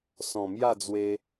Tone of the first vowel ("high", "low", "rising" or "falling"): low